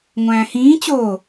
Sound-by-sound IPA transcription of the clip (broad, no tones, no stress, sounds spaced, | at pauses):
ŋʷ æ̃ː h ĩː t͡ɕ o